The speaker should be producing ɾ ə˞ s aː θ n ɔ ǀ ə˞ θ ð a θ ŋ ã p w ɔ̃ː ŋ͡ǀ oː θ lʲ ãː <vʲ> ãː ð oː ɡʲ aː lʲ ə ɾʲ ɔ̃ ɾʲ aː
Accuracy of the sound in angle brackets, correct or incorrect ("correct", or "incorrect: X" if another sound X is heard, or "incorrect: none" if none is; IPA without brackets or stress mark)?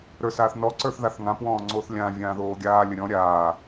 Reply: correct